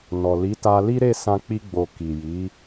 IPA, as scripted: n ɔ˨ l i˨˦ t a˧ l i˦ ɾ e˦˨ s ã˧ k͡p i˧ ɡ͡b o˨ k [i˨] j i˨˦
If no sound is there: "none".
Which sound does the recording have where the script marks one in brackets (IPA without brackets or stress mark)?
i˨